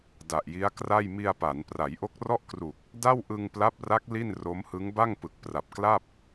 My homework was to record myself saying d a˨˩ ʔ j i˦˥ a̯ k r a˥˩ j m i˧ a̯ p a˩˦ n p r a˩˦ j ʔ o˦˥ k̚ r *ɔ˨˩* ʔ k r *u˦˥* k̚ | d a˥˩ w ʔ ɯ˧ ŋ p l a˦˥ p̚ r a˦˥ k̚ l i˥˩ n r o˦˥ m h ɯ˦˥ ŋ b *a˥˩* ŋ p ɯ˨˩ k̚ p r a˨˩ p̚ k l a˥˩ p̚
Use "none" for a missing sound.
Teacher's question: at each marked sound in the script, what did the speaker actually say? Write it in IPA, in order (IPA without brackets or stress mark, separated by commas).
ɔ˥˩, u˨˩, a˥˩